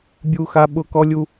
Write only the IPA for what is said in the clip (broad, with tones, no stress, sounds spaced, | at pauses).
bʲ u˦ x a˦ ɓ ʊ˦ k ɔ˦ lʲ u˦